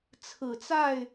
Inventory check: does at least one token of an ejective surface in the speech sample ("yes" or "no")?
no